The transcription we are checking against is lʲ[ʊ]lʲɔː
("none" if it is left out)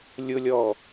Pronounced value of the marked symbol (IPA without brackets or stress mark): ʊ